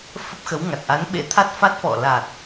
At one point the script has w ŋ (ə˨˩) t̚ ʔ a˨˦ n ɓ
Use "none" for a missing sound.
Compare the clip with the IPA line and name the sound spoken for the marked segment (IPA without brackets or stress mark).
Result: a˨˩